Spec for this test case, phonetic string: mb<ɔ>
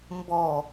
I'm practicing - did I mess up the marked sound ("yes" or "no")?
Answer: no